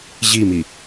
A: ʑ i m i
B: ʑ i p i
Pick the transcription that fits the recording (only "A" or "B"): A